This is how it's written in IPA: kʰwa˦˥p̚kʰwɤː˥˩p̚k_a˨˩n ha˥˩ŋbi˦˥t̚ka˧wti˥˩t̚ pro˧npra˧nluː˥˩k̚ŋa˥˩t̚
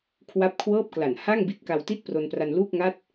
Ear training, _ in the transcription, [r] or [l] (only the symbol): l